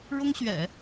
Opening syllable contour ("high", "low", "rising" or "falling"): high